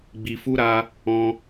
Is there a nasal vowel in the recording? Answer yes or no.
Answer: yes